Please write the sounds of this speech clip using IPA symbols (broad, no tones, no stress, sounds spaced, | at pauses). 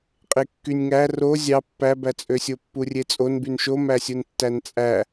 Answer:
qʼ e kː y nʲ ŋ æ r o zʲ ɑ pː æ b æ t͡sʼ ø sʲ o pː u rʲ e t͡sʼ o n b y n ʃ o m æ sʲ u n tː æ n t͡sʼ æ